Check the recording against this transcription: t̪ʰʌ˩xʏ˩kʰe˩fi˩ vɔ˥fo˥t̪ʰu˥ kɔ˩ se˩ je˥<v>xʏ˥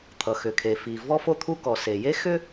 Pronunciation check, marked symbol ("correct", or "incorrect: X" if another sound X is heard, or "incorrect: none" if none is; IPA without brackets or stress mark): incorrect: none